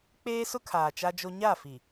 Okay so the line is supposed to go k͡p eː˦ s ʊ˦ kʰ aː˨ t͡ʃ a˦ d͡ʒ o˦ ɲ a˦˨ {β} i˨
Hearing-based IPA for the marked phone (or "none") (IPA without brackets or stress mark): f